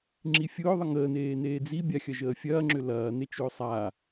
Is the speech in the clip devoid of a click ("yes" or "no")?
no